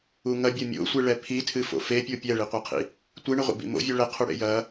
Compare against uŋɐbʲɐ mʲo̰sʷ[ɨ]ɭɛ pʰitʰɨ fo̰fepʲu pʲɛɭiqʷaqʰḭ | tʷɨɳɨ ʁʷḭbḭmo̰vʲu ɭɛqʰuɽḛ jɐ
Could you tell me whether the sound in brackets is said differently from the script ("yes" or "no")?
no